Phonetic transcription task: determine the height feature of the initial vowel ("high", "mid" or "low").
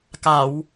low